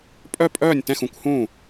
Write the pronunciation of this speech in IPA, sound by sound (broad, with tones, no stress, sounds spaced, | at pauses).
pʼ œ˥˨ pʼ œː˥˨ nʲ t ɛ̃˥˨ x ũ˥˨ kʷ h ũː˥˨